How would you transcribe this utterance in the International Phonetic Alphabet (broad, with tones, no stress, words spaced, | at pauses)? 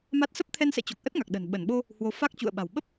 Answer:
ma˦˥t̚ sə˦˥p̚t̪ʰɛ˧nsɛ̰˧˨t͡ɕo˨˩k̚ ʔə˦˥t̚ŋa˨˩k̚ ɗə̤˨˩n ɓə˧˩nɓo˧ | hwo˨˦ fa˦˥k̚ t͡ɕṵ˧˨ə̯ɓa̤˨˩w ɓə˦˥p̚